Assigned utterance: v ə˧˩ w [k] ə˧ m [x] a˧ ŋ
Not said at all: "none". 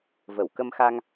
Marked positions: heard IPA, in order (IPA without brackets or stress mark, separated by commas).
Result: k, x